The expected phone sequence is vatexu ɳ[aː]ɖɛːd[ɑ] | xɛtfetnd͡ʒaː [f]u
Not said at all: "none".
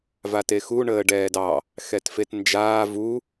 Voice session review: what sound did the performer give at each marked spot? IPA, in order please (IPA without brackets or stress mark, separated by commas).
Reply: əː, ɑ, v